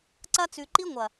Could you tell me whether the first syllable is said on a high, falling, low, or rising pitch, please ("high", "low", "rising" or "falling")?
high